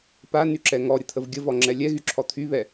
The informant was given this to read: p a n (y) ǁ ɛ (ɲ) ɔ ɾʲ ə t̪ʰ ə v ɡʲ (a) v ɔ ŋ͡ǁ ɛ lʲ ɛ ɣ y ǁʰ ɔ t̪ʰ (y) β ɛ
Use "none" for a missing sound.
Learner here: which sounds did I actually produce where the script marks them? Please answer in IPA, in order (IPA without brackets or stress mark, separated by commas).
y, ŋ, ə, y